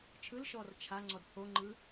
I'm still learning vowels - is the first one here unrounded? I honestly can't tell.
yes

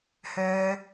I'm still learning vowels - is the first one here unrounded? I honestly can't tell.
no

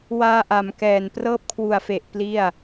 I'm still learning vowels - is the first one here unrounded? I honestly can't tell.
yes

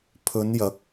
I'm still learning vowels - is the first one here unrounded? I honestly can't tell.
no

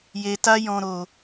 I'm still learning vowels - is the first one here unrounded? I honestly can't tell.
yes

